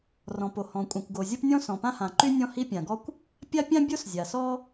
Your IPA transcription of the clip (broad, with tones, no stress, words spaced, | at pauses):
rɔ̃˩po˩hɔ̃˩ kʷʼã˩kʷɡo˩zʲo˥p nʲɔ̃˥sɔ̃˩pã˥ hã˩ǃy˥ nʲɔ̃˥hi˥ pʲã˩ɡɔ˥kʷ | pʲa˥pʲã˥bʲo˥s zʲa˩sɔ˥